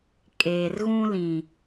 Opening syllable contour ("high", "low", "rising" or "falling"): low